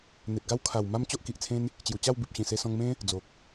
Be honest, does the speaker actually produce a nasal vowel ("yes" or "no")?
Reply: yes